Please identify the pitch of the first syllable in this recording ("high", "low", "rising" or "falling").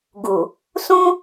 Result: low